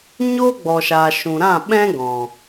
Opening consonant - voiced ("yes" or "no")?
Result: yes